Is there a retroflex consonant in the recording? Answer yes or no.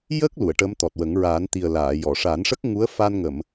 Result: yes